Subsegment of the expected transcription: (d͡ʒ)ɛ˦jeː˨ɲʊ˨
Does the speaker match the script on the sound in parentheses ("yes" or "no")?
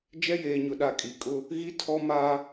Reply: yes